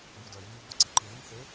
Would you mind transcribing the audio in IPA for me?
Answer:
b u d œ vʲ u b ɔ ǀ i ǃ ɯ ð i ŋ θ ø

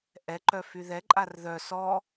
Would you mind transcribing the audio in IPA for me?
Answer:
ʔ ɛ ǃ œ f y ð ɛ ǃʼ a r ð œ s ɔ

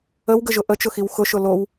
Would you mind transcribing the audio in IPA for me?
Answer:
ə w ɡ ə ʒ ʊ ʔ ə t͡ʃ ʊ x i w x ʊ ʃ ʊ l o w

